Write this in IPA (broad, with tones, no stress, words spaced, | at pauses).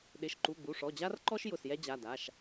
ɗɪ˩˧˩ʃǃu˩˧˩ɡ͡bu˩˧˩ʂɔ˩˧˩ d͡ʑa˦rǃɔ˦ʃ jʊ˩˧˩sjɛ˦d͡ʑa˩˧˩da˩˧˩ʃ